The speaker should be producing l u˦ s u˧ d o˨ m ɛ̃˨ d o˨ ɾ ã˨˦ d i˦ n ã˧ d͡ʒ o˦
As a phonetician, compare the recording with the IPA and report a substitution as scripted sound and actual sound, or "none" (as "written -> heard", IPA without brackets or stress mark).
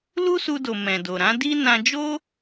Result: none